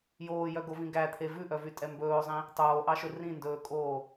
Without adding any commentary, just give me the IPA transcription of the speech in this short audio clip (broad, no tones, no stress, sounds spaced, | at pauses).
j oː j œ ɡ o v ĩ ɡ æ t̪ʰ e v ʉ ʔ œ v y tʼ ɛ m b ɵː o̯ zˤ ĩ | tˤ oː ʔ ɑ ʃ ɵ r ĩ n d ɵː kʼ oː